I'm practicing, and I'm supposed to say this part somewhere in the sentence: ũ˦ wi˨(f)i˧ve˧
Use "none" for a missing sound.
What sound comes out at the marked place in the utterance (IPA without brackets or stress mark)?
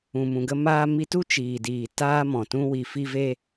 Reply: f